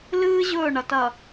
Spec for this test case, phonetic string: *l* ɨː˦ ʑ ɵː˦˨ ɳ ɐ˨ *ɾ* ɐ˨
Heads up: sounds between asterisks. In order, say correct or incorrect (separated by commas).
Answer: correct, incorrect